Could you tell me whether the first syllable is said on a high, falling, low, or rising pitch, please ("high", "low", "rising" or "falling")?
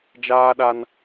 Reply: high